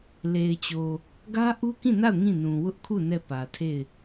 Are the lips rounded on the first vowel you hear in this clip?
no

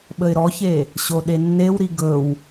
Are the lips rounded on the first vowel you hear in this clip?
no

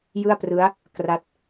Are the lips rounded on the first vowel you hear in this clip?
no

